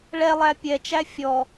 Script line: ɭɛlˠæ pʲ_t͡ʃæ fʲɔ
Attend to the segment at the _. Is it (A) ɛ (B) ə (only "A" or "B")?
A